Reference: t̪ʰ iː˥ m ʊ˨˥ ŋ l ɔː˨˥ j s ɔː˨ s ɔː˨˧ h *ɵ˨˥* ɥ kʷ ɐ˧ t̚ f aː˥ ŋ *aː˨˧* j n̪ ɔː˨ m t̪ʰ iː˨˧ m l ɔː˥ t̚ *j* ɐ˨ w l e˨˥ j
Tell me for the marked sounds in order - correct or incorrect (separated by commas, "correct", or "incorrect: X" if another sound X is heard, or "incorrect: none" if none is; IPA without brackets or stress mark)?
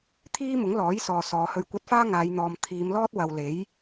incorrect: ɵ˧, correct, incorrect: w